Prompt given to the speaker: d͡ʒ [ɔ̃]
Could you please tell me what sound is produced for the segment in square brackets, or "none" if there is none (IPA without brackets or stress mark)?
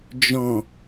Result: ɔ̃